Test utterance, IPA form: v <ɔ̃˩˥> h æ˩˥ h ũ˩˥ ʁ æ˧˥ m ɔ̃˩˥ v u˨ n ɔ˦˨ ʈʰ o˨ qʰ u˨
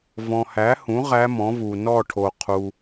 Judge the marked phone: incorrect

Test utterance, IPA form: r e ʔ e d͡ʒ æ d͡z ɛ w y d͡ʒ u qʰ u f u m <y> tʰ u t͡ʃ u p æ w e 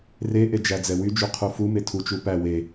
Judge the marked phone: incorrect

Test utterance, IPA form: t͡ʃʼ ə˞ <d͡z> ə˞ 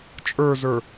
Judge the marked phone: incorrect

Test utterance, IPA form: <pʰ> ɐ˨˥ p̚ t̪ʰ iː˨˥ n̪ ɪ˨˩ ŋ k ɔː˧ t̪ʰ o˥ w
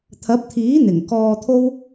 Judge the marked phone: incorrect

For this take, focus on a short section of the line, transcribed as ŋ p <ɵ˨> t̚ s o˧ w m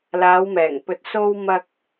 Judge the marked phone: correct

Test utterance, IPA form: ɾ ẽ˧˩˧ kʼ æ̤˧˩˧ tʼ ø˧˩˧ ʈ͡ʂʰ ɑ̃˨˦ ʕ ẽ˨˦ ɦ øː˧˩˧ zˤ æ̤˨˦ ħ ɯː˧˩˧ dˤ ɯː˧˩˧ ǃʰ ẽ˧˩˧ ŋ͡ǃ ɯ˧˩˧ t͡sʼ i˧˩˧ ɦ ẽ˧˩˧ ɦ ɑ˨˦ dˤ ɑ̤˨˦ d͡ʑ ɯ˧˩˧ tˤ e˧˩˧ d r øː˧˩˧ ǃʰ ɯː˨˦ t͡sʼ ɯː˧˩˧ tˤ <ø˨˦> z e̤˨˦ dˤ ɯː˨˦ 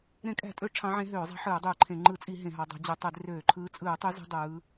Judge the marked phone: incorrect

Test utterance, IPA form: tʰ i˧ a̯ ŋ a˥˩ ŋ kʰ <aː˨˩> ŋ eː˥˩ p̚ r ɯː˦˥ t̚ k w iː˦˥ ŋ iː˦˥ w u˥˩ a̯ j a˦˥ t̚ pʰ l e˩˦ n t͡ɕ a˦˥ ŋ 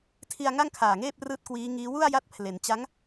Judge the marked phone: correct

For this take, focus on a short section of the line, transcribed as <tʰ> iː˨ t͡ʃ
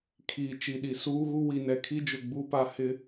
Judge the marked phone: incorrect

